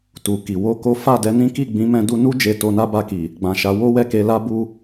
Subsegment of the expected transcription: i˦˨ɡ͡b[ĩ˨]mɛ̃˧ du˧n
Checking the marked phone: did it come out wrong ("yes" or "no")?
yes